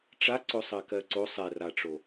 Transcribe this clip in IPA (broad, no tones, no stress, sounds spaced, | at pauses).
ʈ͡ʂ a ǀ o sˤ ɜ k ɜ ǀ o sˤ ɛ r a ʈ͡ʂ o